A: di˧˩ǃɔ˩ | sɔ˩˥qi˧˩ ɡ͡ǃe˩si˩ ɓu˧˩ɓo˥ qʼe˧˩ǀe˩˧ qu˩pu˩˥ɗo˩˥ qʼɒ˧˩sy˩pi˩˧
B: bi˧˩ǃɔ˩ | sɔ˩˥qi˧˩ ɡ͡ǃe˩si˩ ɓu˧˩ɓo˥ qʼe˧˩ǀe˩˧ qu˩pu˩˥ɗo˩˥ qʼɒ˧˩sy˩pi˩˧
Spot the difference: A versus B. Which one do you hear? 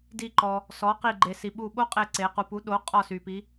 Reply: A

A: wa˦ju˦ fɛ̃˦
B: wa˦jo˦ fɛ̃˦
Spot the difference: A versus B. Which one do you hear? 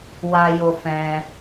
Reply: B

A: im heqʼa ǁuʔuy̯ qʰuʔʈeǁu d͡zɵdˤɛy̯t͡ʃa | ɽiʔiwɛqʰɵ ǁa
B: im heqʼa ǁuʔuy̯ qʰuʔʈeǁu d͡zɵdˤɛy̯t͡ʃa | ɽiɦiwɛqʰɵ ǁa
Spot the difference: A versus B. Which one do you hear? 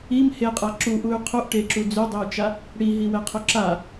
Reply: B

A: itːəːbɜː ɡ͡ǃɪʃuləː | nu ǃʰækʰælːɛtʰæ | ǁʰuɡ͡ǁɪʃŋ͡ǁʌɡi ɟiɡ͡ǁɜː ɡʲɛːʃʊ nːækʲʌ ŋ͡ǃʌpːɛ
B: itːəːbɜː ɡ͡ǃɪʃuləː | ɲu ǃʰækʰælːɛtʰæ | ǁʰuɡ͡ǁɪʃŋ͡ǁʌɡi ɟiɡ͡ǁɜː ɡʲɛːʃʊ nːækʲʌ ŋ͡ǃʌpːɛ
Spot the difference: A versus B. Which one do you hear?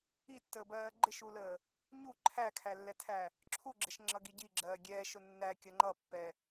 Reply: B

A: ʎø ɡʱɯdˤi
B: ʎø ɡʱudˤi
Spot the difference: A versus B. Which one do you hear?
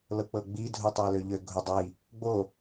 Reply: B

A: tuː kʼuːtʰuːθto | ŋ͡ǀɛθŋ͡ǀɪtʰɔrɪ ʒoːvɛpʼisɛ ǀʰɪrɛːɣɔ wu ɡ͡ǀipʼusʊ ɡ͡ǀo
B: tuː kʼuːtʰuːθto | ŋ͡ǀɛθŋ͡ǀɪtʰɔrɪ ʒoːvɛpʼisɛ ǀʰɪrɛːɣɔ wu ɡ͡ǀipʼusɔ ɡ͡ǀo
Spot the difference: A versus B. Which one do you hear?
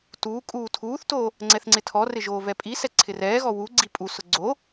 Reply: A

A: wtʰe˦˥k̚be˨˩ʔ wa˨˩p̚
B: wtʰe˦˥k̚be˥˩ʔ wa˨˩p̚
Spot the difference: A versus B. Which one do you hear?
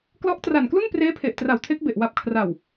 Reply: A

